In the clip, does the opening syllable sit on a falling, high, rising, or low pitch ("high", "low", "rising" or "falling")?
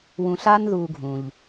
low